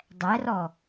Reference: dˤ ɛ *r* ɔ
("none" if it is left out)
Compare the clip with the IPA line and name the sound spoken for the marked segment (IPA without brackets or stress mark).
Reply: r